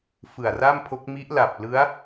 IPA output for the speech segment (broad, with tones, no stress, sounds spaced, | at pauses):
f ɯ˨˩ a̯ r a˥˩ m pʰ o˦˥ k̚ m i˦˥ ʔ l a˨˩ p̚ l ɯ˦˥ a̯